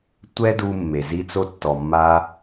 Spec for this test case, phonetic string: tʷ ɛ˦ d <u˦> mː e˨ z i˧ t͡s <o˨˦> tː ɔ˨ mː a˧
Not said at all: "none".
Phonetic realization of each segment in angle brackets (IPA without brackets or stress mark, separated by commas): u˧, o˧